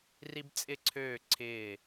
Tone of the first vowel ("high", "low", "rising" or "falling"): high